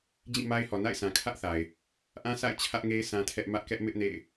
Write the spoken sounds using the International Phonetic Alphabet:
d͡ʑĩ˦˨ma˦ɪ̯hɔ˨ na̰˦˨ɪ̯sʰã˨kʰä˦ʔθa˨ɪ̯ | ʔã˦sʰa̰˦˨ɪ̯ t͡ɕʰä˦ʔŋe˦ɪ̯ sʰã˦tʰɛ˦ʔ mä˦ʔkɛ˦ʔ mɪ˦ʔnḛ˦˨ɪ̯

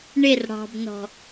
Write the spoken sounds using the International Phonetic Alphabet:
ɳɪr ɽɑ̤bnɔ̤

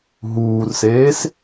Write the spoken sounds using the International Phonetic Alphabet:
ɦuːrseːs

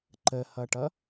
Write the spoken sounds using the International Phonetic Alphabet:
ǃəhʌʈʌ

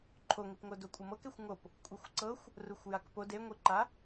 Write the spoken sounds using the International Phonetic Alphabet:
ǃʰoŋipŋo dokʷʼɯmɤkexʷ ŋop | kʷʼɯxʷǀɤxʷ | ruxʷjakpod eŋʷiǃa

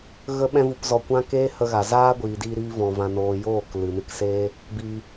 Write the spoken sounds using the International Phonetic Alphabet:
ɣə˦ɓɛ̃˦ vu˧pzɔ˧kʷã˦ keː˦hə˧ɣa˨ zaː˦ɡʷiː˨diː˧ɾiː˧ vɔ̃˨ vã˨noː˨ joː˦˨k lɨ˨nɨ˧kseː˦ | biː˧

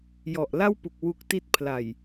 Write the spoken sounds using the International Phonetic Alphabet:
jɔ˨˩ʔla˥˩wpu˨˩k̚ wu˦˥k̚ti˥˩t̚ pʰla˨˩j

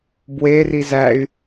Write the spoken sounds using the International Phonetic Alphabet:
bwe rizæy̯

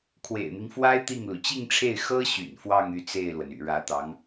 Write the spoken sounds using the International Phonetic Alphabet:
kʰwḛ˨˩ɪ̯n̪i˦ŋfwa˥ɪ̯ t̪i˥˩ŋlu˩ t͡ɕi˥˧ŋʈ͡ʂʰe˥˩ɪ̯ xɤ˥ɕy̰˨˩n fwɑ˥˧ŋ y˥˧t͡se˥˩ɪ̯lwə˩n y̰˨˩ɻä˧˥t̪ɑ˧˥ŋ

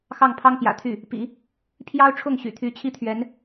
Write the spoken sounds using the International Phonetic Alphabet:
xɑ˥˩ŋpʰɑ˥ŋpjä̰˨˩t̪ʰy˥˩ | pḭ˨˩˦ | pʰjɑ˥ʊ̯ʈ͡ʂʰʊ˥˩ŋɕy̰˨˩t̪ʰy˧˥ t͡ɕʰi˥t̪ʰɥɛ˧˥n

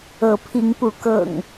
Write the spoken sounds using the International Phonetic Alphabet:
ɤ˨˦pʰi˨˦ŋpu˨˦ kɤ̰˨˩ŋ

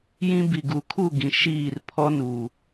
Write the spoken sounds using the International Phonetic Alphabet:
jĩ˦ bi˨ɡu˨˦kʰu˦˨ɡĩ˨ ʃiː˦˨r pʰɔ˦nuː˨

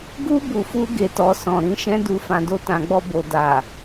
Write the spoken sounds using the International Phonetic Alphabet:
ɡu˦ bu˧fu˦ɡe˧tɔ˧ sɔ̃˨ɾĩ˧ʃɛ̃˦du˧ fã˨do˧tã˨ɡ͡bɔ˧ bo˨da˨

